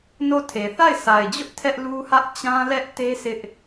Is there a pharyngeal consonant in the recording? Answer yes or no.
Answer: no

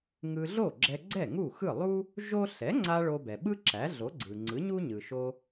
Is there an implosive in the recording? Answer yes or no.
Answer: yes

